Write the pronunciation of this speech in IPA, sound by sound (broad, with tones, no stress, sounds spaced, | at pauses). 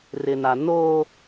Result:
r ɪ˨ n a˨ n oː˦